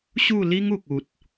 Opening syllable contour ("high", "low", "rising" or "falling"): falling